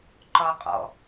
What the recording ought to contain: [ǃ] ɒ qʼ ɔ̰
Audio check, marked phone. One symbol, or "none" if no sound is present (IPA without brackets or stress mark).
ǃ